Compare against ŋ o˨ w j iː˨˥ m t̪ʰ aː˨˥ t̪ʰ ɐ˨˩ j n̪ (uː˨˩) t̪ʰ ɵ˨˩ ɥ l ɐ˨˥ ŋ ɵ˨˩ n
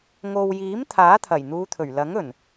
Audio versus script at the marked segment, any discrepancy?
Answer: yes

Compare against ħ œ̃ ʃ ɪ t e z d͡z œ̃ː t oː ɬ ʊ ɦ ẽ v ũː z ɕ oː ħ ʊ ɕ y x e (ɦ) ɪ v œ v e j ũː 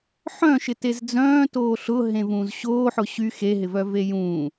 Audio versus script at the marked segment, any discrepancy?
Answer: no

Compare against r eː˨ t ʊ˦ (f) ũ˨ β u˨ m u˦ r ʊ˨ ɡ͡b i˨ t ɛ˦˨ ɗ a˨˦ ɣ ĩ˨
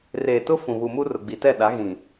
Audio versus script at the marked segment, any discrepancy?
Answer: no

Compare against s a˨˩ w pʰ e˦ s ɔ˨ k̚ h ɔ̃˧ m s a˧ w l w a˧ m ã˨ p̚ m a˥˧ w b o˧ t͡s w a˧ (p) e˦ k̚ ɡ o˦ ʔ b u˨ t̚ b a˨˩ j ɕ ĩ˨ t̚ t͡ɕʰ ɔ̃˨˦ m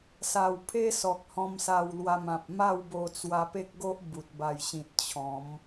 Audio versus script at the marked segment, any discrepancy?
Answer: no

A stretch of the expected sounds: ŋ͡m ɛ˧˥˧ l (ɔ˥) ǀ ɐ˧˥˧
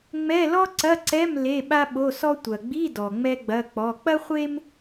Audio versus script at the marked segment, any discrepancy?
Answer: no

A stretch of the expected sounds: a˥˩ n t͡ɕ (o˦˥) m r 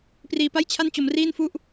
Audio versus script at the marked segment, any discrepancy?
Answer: yes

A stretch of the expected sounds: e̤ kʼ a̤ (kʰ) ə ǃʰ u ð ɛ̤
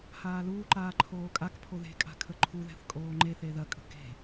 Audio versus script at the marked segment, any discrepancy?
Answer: no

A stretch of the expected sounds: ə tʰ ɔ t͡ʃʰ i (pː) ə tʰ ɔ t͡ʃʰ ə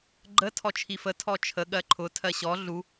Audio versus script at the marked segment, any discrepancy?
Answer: yes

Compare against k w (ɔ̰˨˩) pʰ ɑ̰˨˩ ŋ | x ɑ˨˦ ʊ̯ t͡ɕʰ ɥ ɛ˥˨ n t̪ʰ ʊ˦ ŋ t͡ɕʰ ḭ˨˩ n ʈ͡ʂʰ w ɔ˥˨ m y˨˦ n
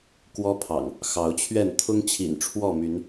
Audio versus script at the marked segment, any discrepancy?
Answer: yes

